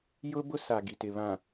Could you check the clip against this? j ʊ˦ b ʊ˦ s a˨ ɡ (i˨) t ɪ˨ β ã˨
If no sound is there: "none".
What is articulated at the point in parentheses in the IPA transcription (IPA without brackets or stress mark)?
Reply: i˨